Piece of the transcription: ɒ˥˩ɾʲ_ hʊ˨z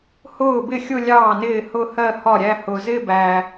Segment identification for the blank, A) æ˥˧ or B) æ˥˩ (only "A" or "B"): A